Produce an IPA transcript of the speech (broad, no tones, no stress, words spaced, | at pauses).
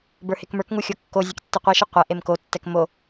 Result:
bə˞hekmə˞kŋu xʲokːozʲɛk tːiqʷiʃi qʷɛ ʔemkotːɛk mo